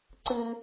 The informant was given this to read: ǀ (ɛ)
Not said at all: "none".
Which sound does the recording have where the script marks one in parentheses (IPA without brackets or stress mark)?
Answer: ɨ